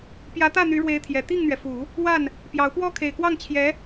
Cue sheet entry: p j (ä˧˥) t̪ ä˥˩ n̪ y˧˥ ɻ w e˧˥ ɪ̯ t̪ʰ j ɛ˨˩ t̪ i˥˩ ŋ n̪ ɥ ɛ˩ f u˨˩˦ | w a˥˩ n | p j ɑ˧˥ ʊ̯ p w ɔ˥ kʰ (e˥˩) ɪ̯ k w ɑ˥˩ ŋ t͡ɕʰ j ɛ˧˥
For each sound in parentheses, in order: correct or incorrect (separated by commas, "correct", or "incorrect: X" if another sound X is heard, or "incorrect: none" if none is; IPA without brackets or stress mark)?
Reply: correct, incorrect: e˨˩